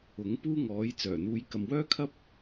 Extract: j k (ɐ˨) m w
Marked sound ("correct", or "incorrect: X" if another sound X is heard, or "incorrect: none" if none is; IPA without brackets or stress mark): correct